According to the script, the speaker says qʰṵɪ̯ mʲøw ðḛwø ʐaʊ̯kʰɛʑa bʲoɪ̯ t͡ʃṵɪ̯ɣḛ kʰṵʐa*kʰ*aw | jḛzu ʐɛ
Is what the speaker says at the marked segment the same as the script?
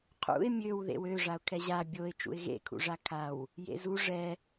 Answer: yes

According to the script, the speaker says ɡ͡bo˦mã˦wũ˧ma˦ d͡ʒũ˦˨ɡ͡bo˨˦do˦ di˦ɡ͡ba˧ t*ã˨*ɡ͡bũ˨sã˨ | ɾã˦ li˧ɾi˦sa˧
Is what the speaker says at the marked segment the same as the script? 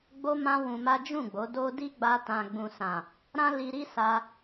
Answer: yes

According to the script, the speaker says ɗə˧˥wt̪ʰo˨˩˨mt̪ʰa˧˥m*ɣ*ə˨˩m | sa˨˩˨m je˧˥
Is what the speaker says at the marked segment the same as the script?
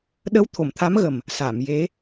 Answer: yes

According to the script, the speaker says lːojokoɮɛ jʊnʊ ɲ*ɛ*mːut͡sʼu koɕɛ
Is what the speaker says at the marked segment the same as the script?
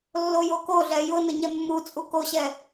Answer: yes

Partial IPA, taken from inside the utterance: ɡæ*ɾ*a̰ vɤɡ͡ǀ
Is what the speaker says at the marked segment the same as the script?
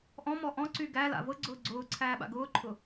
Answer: no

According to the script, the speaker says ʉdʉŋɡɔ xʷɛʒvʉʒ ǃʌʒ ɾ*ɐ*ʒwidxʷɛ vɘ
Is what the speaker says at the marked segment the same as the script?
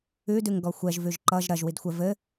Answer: yes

